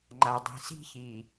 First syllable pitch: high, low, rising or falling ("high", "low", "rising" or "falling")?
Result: low